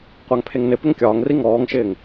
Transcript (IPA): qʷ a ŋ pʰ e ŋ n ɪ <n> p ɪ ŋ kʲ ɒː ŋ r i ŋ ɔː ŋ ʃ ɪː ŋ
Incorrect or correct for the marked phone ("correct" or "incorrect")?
incorrect